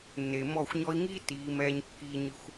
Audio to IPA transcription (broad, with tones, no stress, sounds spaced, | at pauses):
nː e˨ m ɔ˦˨ xʷ ɲ ɔ˧ i̯ ŋ iː˦ t iː˨˦ m ɛː˧ ɲ kː iː˧ ɲ ɨ˧ xʷ